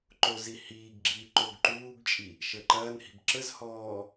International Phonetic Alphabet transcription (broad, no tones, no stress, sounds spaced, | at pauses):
ǃ o z i h iː ɡ ɡ͡ǁ iː ǃ o ɡ ǃ uː ɡ t͡ʃʼ i | ʃ ə ǃ ɐː n h i̤ b ǁ ə z h ɔː